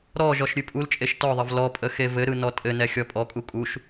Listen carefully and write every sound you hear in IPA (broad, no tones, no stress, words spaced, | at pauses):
ɾɔ ʒɔʃɾʲʉpʼult͡ʃʼeʃ tɔðˤəv lɔpʼə xevɘɾɯ nɔtʼɘnɛ xʲɔpʼɔkʼu kʼuʃ